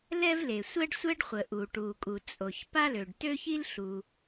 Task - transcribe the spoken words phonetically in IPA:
l ɛ˥ v l e˩ sʷ ɛ˥ ɖ sʷ ɛ˥ ɖ χʷ ə˩ ʔ u˩ ʈ u˩ kʼ u˩ t͡sʼ o˩ ç p a˥ l ø˩ ɖ t ø˥ ç i˥ l ɬ u˩

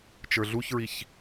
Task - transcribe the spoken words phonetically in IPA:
t͡ʃ ə˞ ɮ u ç ɹ i ç

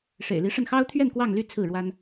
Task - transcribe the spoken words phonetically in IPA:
ʂ ḛ˨˩ ɪ̯ l i˧˥ ʂ ə˥˩ n x ɑ˥ ʊ̯ t̪ʰ ɥ ɛ˥˧ n k w ɑ˥˧ ŋ l y˥˧ t͡sʰ ɹ̩˥˩ ɻ w a˥ n

